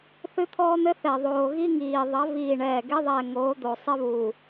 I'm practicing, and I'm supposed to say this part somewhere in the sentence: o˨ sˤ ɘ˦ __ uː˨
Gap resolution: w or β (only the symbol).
β